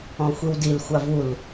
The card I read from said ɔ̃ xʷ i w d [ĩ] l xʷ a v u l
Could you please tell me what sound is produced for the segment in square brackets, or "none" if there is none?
i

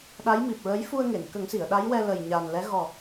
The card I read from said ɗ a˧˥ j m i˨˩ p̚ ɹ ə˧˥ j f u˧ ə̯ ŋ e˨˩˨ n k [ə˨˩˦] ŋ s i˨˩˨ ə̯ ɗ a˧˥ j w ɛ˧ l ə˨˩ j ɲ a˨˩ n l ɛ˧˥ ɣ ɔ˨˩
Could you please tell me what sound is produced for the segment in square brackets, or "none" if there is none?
ə˨˩˦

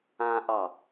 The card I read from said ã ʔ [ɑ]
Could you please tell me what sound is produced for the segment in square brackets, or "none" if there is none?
ɑ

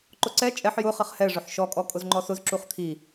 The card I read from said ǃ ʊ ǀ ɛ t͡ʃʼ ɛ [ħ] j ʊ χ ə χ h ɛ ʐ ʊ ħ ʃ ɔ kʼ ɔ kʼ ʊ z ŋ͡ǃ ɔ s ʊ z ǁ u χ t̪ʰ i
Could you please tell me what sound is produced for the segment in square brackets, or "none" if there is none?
ħ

